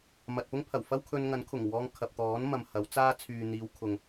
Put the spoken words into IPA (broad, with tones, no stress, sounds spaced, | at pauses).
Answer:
m ɐ˨ t̚ p ʊ˥ ŋ pʰ ɐ˨˩ w f ɐ˥ w kʰ ɵ˧ n ŋ ɐ˨˥ n kʰ ʊ˨˩ ŋ w ɔː˧ ŋ kʰ ɐ˨ p̚ t̪ ɔː˨˥ n m ɐ˨ m h ɐ˨˥ w t͡s aː˥ t͡sʰ yː˨ n̪ iː˨˧ w kʰ ʊ˨ ŋ